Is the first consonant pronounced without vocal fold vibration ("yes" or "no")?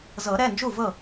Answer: no